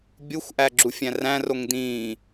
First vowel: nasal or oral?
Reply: oral